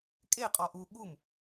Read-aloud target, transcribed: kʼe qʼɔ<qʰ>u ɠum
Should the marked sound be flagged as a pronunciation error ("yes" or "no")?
yes